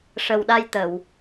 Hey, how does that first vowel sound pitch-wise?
low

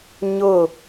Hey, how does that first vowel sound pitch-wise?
falling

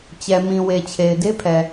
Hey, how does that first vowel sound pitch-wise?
low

